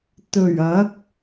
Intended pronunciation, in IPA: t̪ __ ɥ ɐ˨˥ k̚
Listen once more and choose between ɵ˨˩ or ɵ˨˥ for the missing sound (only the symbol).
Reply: ɵ˨˩